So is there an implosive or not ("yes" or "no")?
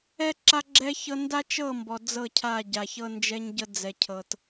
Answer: no